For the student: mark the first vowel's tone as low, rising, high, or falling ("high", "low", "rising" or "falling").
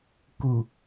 low